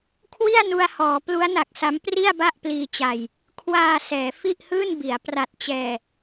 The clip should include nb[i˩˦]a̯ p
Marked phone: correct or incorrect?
correct